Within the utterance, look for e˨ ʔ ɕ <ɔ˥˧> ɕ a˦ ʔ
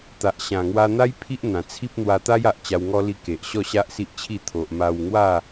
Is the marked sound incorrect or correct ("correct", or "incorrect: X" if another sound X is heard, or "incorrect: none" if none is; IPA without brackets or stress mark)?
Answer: correct